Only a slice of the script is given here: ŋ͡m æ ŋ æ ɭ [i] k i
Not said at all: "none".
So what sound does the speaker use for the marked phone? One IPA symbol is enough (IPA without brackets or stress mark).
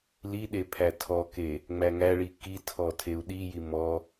i